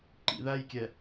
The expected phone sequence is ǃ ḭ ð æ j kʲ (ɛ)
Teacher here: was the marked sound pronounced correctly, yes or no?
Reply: yes